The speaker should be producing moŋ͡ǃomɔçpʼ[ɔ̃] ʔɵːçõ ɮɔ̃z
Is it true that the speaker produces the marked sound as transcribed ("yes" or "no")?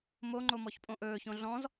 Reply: no